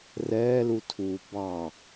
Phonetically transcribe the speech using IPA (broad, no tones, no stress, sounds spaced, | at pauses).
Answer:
r ɛː l u tʰ uː b ɑ